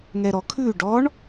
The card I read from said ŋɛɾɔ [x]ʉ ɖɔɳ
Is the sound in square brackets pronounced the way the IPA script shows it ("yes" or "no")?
no